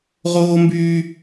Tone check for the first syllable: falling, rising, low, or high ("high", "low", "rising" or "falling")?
high